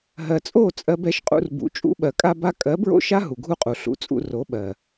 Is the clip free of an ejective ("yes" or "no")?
no